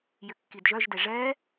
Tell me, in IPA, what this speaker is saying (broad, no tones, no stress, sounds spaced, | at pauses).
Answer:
j ʏ kː i d ʒ œ ʒ d e ʐ ɛ